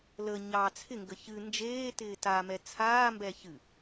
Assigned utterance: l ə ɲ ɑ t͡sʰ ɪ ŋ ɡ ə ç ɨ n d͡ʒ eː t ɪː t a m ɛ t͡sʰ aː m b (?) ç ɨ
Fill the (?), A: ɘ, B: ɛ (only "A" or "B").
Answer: B